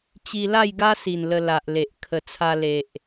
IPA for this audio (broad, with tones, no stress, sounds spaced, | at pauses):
t͡ɕ i˧ l a˥˧ j ɡ a˦ s i˨˩ n l ə˧ l a˨ ʔ l e˨ ʔ kʰ ə˧ t͡sʰ a˧ l e˨ ʔ